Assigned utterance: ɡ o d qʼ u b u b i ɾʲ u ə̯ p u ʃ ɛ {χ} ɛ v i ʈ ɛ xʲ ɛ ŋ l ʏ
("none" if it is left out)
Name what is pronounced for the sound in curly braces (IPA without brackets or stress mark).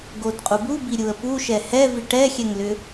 h